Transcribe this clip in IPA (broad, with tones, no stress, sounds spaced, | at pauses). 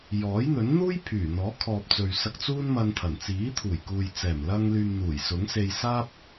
j ɔː˨˥ j n̪ ɵ˨˥ n n̪ uː˥ j pʰ yː˨˩ n̪ ɔː˨˥ kʰ ɔː˨ p̚ t͡s ɵ˨ ɥ s ɐ˧ k̚ t͡s uː˥ n m ɐ˧ n t̪ʰ ɐ˨˩ n t͡s iː˨˥ t̪ʰ uː˨˩ j k uː˨ j t͡s ɛː˨˩ m l ɐ˧ ŋ l yː˨ m n̪ uː˨˩ j s ʊ˨˥ ŋ s e˧ j s aː˥ p̚